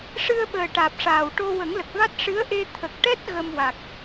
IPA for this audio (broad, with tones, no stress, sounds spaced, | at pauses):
ʂ ɨ˧ ə̯ ɓ əː˨˩ ʈ aː˨˩ p̚ ʂ aː˨˩ w ʈ o˧ w ə˨˩˦ ŋ l ə˨˩ k̚ v a˦˥ t̚ ʂ ɨ˧˥ ə̯ ʔ e˧ t̪ʰ ə˨˩ k̚ ʈ ɛ˦˥ t̚ ɣ ə˧ m w a˨˩ k̚